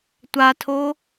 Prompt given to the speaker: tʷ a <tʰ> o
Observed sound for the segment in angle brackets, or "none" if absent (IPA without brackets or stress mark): tʰ